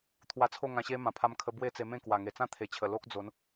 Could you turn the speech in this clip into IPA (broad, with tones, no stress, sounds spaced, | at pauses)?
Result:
t̪ʰ w a˧ t͡sʰ o˥˧ ŋ ã˧ ɕ e˦ m ã˨˩ pʰ a˧ m kʰ ə˧ b w e˥˧ t͡s e˧ m ẽ˥˧ k w a˨˩ ŋ e˨˩ t͡s ã˥˧ t̪ʰ e˨˩ t͡ɕʰ ə˨˩ l o˦ k̚ d͡z o˨˦ n